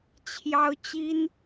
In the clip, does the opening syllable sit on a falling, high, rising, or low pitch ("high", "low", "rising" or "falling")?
high